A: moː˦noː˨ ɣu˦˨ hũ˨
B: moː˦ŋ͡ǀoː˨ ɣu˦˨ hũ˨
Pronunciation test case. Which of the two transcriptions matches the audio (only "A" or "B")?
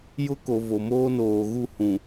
A